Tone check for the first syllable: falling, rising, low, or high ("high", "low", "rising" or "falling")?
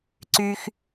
high